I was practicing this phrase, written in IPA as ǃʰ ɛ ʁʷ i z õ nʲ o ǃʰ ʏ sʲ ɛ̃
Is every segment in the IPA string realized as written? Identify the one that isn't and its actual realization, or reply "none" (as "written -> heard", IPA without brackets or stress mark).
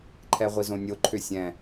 none